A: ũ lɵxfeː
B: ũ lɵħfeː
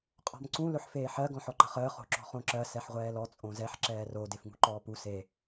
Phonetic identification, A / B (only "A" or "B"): B